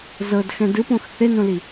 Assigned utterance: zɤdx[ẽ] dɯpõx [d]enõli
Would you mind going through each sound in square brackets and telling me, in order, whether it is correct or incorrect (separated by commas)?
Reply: incorrect, incorrect